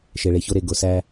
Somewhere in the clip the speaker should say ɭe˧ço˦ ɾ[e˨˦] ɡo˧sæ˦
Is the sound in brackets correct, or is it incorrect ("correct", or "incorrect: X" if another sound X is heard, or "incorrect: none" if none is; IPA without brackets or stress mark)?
incorrect: e˧